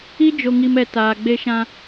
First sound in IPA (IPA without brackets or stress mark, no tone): i